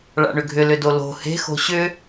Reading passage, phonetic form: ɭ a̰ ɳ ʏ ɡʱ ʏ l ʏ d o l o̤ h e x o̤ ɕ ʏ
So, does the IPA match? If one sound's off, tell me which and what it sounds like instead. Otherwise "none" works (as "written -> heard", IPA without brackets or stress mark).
e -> e̤